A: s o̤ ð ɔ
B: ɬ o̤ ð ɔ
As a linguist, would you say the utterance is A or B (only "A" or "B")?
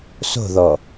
A